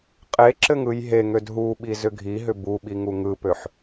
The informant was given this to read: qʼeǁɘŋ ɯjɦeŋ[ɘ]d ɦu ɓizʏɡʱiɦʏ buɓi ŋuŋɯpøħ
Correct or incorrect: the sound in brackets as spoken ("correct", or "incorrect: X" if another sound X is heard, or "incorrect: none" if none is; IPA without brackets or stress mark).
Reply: incorrect: ø